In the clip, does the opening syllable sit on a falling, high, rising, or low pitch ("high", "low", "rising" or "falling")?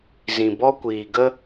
low